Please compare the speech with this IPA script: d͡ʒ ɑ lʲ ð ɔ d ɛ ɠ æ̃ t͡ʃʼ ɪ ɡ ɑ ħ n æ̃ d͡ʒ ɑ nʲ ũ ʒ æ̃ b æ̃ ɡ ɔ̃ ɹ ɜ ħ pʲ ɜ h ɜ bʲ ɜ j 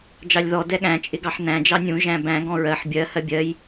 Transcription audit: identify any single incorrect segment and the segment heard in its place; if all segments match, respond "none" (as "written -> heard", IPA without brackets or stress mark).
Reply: pʲ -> bʲ